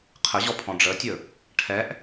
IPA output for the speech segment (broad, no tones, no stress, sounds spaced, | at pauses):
qʰ ə ʑ ɔ pʰ ɔ̃ ɖ͡ʐ ə tʲ ɵ | ʈʰ ɛ ʔ